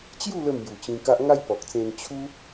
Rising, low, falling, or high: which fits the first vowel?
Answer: falling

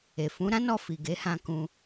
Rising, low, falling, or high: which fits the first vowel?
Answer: low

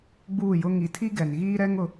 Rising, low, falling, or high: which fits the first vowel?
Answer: falling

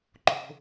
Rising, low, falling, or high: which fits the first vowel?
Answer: high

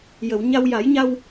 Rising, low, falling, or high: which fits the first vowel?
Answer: low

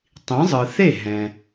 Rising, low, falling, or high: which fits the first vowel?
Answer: rising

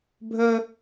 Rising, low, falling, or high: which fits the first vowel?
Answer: high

